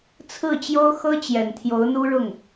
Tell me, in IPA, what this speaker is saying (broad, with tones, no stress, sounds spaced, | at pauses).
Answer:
t͡sʰ ɹ̩˥˩ t͡ɕ j o˥ ʊ̯ x ɤ˥ t͡ɕ j ɛ˨˩ n t̪ʰ j o˧˥ ʊ̯ n̪ u˥ ɻ ʊ˥˩ ŋ